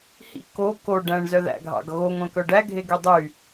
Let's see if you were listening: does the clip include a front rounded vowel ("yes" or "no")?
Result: yes